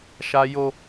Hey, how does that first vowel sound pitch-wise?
high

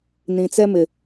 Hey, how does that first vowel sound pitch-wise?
low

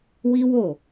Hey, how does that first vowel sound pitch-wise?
high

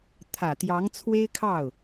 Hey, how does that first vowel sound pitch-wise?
low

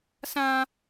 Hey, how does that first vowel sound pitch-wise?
high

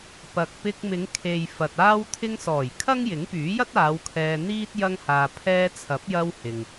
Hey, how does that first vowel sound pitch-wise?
low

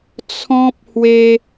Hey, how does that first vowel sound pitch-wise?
high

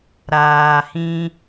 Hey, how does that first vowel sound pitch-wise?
low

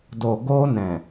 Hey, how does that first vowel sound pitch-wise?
low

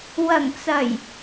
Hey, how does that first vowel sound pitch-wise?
low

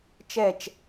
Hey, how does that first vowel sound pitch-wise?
falling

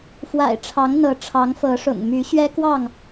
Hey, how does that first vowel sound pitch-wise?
low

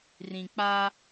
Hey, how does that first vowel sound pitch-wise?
low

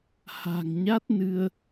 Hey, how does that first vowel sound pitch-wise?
low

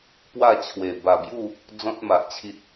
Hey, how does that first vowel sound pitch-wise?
falling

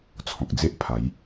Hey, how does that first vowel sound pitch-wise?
low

